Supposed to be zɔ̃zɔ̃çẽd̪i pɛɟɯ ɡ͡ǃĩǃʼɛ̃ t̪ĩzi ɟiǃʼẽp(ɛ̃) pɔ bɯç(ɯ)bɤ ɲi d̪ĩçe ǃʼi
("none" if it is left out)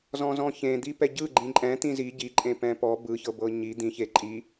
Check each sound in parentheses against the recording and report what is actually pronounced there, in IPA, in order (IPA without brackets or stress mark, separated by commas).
ɛ̃, ɤ